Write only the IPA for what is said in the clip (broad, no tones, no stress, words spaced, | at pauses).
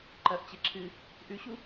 ǃɐʔ t͡ɕeǁʰɨ | ʔʉɕu